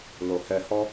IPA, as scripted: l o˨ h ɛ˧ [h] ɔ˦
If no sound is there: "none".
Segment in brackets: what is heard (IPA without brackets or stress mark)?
h